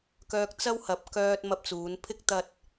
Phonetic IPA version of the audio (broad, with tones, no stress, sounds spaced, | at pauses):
k œː˨ k̚ t͡s ɐ˧ w h ɐ˨ p̚ k œː˧ t̚ m ɐ˧ p̚ t͡s uː˨˧ n pʰ ɪ˥ k̚ t̪ ɐ˧ t̚